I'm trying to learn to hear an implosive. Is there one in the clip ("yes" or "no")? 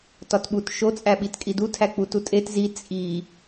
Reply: yes